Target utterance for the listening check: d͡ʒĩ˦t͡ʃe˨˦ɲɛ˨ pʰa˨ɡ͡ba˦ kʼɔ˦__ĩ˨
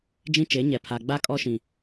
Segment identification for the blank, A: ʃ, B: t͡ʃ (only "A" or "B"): A